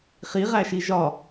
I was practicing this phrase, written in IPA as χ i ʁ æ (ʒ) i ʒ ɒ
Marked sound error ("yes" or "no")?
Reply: yes